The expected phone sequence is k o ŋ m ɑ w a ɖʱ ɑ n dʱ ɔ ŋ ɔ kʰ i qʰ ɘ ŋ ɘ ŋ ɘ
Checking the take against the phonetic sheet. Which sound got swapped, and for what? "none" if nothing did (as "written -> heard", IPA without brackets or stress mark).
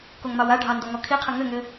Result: dʱ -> d